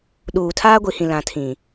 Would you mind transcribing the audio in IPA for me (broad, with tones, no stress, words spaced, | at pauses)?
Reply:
ɗuː˨tʰaː˦ ɡʷi˨hĩ˨ lã˨tʰĩ˨